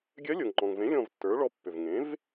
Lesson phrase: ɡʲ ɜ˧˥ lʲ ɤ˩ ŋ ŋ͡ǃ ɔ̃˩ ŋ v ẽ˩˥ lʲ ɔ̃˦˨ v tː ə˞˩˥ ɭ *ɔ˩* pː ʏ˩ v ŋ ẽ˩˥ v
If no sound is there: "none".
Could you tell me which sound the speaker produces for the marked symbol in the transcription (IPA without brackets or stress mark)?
ɔ˧˥